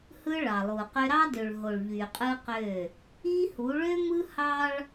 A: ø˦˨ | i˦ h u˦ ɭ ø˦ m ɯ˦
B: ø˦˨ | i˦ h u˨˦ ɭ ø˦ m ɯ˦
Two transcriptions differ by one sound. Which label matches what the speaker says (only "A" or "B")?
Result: B